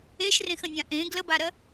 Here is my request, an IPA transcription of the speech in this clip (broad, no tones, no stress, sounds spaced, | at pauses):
e ʃ r ẽ x ə̃ nʲ ã ʔ ẽ ɡ l ə b a ɾ ɜ